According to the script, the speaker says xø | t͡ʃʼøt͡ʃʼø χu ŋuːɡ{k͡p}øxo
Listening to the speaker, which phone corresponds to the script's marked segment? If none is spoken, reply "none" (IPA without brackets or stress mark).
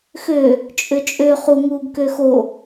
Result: k